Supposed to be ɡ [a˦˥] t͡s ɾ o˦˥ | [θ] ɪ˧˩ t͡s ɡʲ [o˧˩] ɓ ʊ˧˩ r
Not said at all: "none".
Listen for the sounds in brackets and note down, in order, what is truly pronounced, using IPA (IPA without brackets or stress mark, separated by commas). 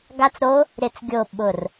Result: a˦˥, ɾ, o˧˩